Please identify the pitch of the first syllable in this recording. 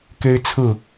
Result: high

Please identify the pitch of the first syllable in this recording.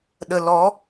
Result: low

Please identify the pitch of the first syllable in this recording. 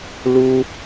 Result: high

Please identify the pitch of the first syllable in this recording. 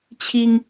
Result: high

